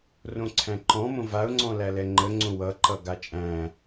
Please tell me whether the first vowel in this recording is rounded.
yes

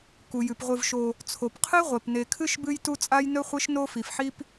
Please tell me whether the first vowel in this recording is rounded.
yes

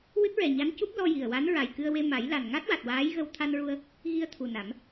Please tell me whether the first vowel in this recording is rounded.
no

